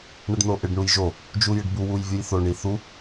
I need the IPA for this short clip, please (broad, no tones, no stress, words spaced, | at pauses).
ɳəɖnoʔɪɖ ɳujʒo | d͡ʒujɪɖbu wujvʲujθo ɳiθu